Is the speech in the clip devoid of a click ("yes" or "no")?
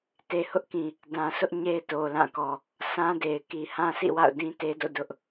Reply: yes